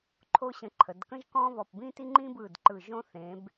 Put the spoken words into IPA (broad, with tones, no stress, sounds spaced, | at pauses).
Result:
ǃʰ o˥ ɕ ə̃˧ ǃʰ ə˩˧ d k ə̃˥ ʒ k ɔ̃˥ β ɔ˧˩ p b ĩ˥ t i˥ ŋ͡ǃ ĩ˥ b ɯ˧˩ d ǃ ɯ˧˩ ʒ õ˥ θ ẽ˩˧ b